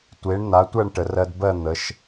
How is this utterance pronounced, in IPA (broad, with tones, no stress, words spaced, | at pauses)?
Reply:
tʷe˨˥ɳn̪a˨˥tʷɜ˥˧ɳ ʈə˩˧rɜ˧dbɜ˥˧ n̪ə˩˧ʃ